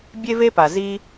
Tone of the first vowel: high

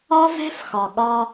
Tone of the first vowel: high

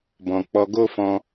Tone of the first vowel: low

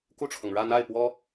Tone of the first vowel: falling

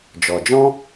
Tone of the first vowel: low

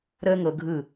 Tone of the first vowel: high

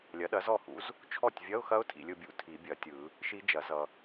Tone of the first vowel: rising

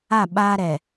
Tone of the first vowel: falling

